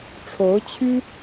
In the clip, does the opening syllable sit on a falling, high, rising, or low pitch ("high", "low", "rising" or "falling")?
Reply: rising